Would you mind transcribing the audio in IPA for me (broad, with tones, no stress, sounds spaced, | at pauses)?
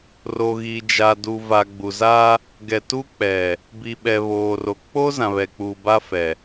r o˨ ɣ i˨ d͡ʒ a˨ d u˨ v a˨ ɡ͡b u˨ z a˦ | ɡ ɛ˨ t u˦ k͡p ɛ˨ | b i˨ ɓ ɛ˨ β oː˨ r o˨ k͡p o˦ z ã˨ β ɛ˨ k͡p uː˨ b a˦ f ɛ˨